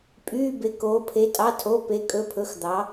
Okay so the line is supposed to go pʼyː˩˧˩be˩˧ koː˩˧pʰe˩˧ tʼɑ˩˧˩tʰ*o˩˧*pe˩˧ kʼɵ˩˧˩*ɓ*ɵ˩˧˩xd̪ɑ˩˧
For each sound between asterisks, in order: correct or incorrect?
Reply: incorrect, incorrect

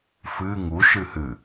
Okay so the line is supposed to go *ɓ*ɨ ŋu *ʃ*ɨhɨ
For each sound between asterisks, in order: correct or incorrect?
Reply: incorrect, correct

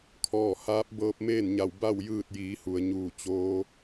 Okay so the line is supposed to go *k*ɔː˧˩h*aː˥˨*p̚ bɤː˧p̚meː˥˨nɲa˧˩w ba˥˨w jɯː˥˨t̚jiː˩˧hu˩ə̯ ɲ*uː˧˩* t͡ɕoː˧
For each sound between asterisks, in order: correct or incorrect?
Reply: incorrect, incorrect, correct

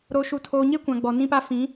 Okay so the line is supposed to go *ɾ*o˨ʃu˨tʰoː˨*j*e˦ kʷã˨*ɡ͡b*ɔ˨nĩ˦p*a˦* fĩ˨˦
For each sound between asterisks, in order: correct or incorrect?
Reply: correct, incorrect, correct, correct

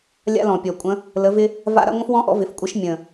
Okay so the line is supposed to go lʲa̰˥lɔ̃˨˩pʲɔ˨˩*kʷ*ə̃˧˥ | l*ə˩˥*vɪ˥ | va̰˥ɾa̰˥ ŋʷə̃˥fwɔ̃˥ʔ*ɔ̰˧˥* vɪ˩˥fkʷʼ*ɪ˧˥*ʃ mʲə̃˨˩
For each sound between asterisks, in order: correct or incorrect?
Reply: incorrect, incorrect, correct, incorrect

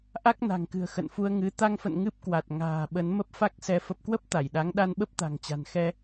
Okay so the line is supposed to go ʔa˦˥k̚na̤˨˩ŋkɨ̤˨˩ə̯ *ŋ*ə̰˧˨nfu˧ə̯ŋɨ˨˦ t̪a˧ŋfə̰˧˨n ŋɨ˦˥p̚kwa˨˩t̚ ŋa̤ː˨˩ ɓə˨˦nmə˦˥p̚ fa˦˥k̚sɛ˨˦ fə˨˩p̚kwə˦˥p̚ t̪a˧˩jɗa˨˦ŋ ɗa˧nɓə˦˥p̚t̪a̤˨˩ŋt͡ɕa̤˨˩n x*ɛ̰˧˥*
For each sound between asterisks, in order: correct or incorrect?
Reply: incorrect, incorrect

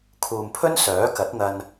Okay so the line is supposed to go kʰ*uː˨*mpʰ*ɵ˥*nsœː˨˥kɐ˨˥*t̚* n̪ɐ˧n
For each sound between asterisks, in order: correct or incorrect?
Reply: correct, correct, correct

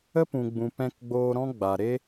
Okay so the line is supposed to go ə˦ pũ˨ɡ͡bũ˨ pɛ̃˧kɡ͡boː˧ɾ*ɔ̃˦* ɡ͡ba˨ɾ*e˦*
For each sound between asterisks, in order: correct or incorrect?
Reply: correct, correct

